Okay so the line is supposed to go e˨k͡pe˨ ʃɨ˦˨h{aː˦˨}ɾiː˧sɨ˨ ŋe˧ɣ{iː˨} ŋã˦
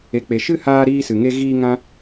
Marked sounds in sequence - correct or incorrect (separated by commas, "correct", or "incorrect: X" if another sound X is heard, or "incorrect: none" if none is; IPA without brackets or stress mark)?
incorrect: aː˧, incorrect: iː˧